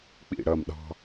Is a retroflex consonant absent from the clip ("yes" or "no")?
no